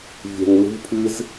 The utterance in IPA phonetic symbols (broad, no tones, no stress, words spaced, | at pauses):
vʲɛ̤ŋlṳpʰɨz